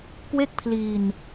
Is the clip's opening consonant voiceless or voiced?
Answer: voiceless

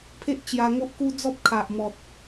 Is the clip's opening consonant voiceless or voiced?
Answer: voiceless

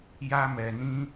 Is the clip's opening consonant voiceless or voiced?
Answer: voiced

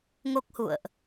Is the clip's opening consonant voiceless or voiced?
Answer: voiced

